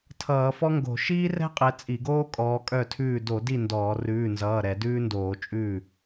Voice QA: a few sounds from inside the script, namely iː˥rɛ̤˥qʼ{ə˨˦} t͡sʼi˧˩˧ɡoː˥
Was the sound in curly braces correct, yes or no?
no